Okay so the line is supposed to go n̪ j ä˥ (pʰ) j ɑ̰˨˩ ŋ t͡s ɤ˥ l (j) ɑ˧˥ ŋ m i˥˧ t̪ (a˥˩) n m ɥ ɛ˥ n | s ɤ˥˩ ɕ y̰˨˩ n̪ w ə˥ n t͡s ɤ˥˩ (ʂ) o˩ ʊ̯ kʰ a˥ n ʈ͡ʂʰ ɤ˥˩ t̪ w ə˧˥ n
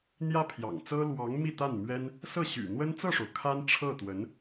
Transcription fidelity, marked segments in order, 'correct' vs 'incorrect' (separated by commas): correct, incorrect, correct, correct